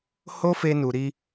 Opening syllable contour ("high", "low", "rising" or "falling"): high